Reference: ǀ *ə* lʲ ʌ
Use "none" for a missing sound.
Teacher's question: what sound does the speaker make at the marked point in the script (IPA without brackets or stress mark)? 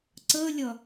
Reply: ə